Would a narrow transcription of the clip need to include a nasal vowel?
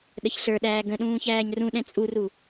yes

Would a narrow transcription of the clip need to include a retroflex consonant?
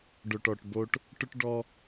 yes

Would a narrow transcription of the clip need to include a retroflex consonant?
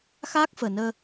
no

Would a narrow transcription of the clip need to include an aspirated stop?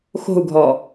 no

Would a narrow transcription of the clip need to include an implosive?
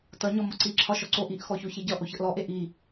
no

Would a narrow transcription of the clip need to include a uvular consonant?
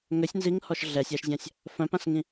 no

